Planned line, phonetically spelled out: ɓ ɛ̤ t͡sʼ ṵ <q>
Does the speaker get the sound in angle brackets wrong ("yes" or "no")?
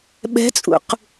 no